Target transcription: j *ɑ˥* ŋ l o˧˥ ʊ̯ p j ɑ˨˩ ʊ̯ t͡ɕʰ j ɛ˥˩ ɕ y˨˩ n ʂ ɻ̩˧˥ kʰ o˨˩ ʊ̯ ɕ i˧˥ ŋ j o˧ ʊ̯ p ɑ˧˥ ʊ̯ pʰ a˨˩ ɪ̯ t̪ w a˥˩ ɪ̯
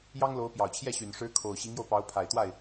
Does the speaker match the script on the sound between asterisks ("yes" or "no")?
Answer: yes